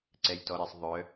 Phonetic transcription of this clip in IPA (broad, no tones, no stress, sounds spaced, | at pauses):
ǀ ɛ j t ɔ ɾ ɛ sˤ ðˤ œ